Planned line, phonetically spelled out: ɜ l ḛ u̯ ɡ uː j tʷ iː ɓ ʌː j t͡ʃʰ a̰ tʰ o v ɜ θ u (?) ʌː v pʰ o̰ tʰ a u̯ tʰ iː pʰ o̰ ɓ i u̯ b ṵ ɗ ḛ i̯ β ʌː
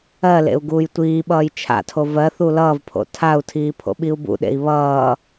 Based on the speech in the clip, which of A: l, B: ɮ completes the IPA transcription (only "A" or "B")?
A